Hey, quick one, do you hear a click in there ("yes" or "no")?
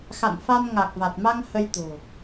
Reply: no